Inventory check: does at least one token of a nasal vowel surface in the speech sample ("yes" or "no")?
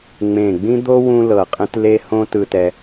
yes